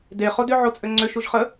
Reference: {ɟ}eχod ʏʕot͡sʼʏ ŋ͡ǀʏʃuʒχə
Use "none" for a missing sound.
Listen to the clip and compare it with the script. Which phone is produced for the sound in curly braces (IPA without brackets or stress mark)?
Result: d